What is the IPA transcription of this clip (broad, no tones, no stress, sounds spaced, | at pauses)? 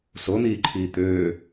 s o n̪ iː ǃʰ iː t̪ øː